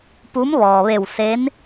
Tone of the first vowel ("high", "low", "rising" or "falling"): rising